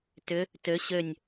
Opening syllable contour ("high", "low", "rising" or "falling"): rising